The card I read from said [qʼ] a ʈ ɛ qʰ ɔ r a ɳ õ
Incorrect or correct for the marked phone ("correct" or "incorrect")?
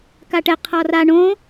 incorrect